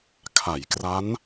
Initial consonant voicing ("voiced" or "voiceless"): voiceless